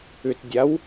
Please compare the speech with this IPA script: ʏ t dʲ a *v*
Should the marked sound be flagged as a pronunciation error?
yes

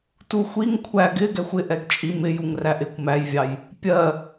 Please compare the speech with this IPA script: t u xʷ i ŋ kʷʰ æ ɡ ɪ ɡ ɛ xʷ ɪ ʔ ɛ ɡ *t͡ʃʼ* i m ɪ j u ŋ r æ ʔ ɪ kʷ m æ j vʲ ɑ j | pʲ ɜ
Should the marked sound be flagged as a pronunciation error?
no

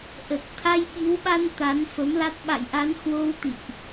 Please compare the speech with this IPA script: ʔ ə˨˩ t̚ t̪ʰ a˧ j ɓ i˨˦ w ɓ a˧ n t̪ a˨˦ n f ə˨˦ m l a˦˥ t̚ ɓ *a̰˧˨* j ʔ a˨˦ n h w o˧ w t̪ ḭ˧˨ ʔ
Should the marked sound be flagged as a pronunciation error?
no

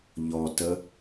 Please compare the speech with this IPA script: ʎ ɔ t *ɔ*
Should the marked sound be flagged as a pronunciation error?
yes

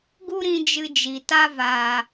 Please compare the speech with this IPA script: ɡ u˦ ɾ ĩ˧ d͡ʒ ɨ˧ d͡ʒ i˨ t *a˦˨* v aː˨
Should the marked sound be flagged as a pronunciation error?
yes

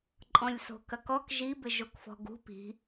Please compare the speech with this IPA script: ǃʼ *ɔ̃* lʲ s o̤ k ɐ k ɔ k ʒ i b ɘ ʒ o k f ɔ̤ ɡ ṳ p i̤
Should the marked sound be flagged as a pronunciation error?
no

